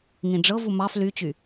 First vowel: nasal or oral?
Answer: nasal